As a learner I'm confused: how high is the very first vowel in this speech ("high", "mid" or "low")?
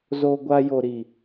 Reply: mid